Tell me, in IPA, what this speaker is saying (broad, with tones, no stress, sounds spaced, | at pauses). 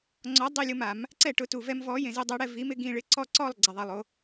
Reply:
ŋ͡ǀ ɔ˨˥ dˤ i˥˨ lʲ ʊ˦ m a˨˩˦ m | ǀ ɛ˥˨ ʈ ʊ˨˥ t u˨ v ɛ˦ m v ɔ˨˥ j ẽ˨ z e˦ dˤ ɛ˨˥ ɽ ɛ˥˨ v i˨˥ m ɪ˨˩˦ ɡ ĩ˥˨ ɭ ɪ˦ ǀ ɔ˥˨ ǀ ɔ˥˨ lˠ ɡ͡ǀ ɛ˨ ðˤ ɛ˨ lˠ o˨˥